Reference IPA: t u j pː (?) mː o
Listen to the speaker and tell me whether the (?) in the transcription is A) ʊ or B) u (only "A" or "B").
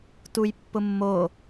A